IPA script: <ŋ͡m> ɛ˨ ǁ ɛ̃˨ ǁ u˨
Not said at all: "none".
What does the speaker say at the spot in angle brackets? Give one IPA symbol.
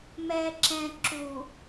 m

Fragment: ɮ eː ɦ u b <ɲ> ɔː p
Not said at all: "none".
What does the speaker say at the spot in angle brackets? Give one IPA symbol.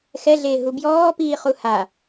j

